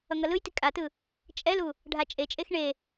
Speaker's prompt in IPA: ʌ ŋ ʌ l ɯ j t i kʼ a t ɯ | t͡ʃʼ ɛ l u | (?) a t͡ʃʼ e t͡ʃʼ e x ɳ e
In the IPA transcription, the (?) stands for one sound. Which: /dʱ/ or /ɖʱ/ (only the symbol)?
ɖʱ